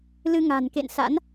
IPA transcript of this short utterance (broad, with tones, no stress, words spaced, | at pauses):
lɨ˧ŋa̤˨˩nkḛ˧˨nsa̰˧˥n